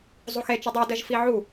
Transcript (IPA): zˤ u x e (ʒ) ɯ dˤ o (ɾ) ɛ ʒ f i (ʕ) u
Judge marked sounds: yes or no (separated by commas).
no, no, yes